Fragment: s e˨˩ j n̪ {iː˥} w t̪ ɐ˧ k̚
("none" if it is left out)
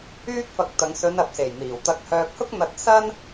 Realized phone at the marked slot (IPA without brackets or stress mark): iː˨˩